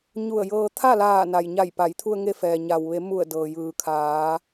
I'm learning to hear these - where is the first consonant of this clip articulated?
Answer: palate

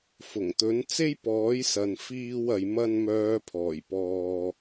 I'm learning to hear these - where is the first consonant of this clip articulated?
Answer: lips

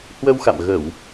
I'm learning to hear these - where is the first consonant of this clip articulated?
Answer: throat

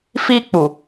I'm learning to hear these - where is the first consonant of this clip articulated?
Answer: lips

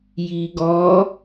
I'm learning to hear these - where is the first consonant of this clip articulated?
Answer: palate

